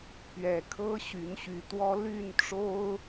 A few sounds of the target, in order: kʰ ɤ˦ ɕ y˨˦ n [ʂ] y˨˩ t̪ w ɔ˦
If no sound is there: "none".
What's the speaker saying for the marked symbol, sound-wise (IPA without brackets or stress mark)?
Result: ɕ